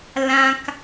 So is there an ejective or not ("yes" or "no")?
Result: no